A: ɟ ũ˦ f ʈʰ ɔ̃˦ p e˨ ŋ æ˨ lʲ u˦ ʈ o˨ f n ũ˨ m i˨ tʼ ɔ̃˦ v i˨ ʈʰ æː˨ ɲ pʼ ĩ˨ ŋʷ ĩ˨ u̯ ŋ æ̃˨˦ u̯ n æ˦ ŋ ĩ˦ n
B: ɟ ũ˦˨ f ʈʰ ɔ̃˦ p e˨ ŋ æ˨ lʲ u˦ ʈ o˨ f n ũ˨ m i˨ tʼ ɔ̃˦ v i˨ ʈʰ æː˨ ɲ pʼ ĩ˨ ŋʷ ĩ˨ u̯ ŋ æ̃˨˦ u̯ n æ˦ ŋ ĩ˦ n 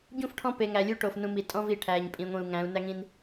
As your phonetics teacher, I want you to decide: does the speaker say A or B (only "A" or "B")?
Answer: B